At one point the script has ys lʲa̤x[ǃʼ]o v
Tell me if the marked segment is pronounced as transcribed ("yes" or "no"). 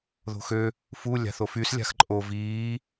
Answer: yes